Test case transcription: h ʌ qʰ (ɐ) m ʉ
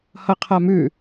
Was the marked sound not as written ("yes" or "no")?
yes